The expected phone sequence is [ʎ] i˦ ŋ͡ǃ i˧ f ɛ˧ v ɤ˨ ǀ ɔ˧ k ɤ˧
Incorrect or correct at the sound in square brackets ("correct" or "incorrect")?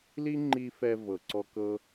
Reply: incorrect